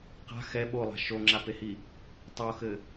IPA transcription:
q a̤ x ɛ ɓ o lˠ a̤ ʃ o ŋ͡ǁ a p e h i | tˤ o x ɘ

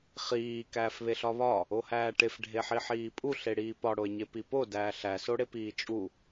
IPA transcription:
χ iː k æː f β e ɬ ɒ β ɒ | o h æː ʈ e f ɖʱ e ħ i ħ iː pʼ u ɬ e ɽ iː p ɒ ɽ o e̯ ɲ e p i p o d æː ɬ æ s o ɽ e p iː t͡ʃʼ u

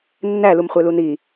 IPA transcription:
nː æ l u m χʷ e l u n i

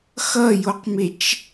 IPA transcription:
x ʌ j o q m e t͡ʃ

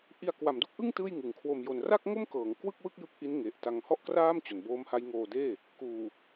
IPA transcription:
ʔ i˧ a̯ k w a˩˦ m d u˦˥ k̚ ʔ ɯ˥˩ ŋ t ɯː˥˩ j ŋ ɯ˨˩ ŋ kʰ w o˧ m j o˧ n r a˥˩ k̚ ŋ o˥˩ m k ɤː˩˦ ŋ k w ɯ˥˩ k̚ w ɯ˥˩ k̚ j ɯ˦˥ k̚ ʔ i˦˥ n ŋ e˨˩ ʔ t a˧ ŋ h ɔ˥˩ ʔ k r aː˥˩ m t͡ɕ o˩˦ n b oː˦˥ m h a˦˥ j ŋ oː˧ d eː˥˩ | k uː˨˩

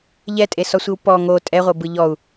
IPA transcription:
ʎ ɛ tʼ e s ɔ sʷ i w p ɔ ŋ o tʼ ɛ ʁʷ ɤ b ɯ ʎ ɔ u̯

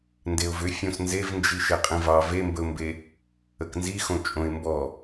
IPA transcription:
n d e ʊ̯ v ʏ fʲ õ s n z e v n d͡ʒ i ʃ e qʼ ĩ v ɑ v e m b ə ʊ̯ m b e | ə k n z i x õ t͡ʃʼ õ ɪ̯ m b ɔ

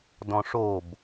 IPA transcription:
d ɔ̃ ʂ o b

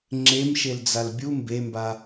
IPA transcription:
ŋ͡ǁ e m ʃ e l d͡z a l bʲ u m b e m b a

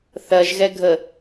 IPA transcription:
θ ɜ ʒ ɣ ɛ ɡʱ ə

